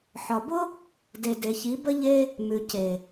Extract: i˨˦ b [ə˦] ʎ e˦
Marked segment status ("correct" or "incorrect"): correct